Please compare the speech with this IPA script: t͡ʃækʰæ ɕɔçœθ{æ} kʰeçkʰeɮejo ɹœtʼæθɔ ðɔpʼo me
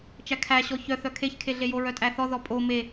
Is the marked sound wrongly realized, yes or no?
yes